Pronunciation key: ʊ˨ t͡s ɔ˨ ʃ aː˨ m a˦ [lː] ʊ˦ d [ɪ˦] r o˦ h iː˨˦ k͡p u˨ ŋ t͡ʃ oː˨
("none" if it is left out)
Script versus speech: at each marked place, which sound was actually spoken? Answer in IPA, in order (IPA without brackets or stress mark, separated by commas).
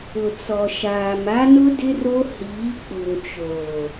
n, ɪ˦